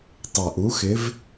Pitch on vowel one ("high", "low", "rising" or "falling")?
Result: low